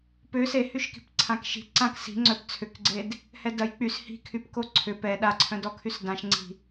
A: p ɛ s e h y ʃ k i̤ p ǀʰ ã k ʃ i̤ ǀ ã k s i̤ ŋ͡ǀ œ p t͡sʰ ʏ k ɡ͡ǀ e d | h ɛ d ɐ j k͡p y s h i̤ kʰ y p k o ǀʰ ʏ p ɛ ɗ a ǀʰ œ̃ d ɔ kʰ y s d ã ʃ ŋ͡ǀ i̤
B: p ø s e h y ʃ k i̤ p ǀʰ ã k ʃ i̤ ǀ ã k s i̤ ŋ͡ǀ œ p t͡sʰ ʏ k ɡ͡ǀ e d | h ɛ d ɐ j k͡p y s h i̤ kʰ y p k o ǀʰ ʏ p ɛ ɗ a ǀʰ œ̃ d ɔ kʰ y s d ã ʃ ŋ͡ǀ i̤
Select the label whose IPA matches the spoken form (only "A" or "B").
B